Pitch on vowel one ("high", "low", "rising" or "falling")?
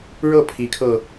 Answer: falling